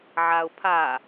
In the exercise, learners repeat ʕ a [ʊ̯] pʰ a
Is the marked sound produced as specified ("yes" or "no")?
yes